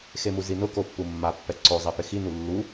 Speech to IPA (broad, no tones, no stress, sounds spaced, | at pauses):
x e m u z i n ʊ k o pː u mː a pː ɛ ǀ o zˤ ɛ p ɪ x i n u lː u